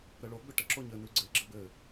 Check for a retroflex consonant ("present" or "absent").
present